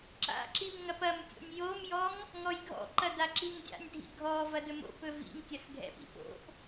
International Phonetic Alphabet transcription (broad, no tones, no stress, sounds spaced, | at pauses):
ǁ a̰ ǁ i m ŋ ɐ p ɐ m tʲ o̰ nʲ j o m j ɔ ŋ | ŋ ɔ j ɡʱ ɔ̰ ǃ ɐ d a ǁ i ŋ dʲ a̰ nʲ dʱ ḭ ɡʱ ɔ v ɐ d ɵ m o̰ p ɵ v ḭ ŋ tʲ ɐ s ɡʱ ɛ̰ p ḭ p o̰ ʔ